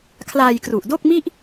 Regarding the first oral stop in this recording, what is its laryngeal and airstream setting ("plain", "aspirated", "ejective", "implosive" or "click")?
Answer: aspirated